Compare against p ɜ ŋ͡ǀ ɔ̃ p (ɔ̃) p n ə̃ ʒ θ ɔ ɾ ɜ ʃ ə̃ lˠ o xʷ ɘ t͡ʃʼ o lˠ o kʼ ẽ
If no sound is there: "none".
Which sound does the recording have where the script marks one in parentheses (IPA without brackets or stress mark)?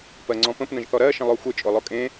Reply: ə̃